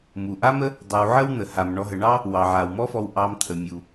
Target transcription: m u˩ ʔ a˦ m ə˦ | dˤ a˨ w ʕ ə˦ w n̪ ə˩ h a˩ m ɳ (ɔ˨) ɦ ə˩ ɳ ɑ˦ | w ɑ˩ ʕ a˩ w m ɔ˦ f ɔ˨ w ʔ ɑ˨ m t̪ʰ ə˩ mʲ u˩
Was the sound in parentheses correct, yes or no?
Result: yes